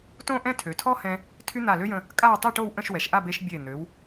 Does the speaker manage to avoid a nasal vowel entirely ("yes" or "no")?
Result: no